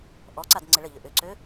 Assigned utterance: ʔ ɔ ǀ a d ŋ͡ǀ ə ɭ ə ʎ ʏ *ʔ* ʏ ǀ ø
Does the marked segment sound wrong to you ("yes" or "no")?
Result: no